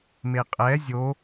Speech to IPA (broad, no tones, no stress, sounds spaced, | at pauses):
m e qʼ ɛ zʲ o